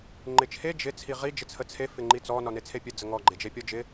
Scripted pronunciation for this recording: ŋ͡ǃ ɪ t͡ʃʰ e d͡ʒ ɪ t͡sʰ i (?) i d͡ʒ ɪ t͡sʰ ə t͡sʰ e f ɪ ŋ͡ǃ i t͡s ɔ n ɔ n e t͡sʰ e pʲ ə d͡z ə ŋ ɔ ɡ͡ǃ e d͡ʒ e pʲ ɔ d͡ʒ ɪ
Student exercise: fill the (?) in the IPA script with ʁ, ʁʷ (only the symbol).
ʁ